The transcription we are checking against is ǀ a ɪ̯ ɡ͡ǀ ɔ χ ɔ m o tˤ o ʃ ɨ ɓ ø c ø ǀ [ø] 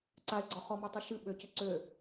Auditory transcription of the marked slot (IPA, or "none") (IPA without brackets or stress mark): ø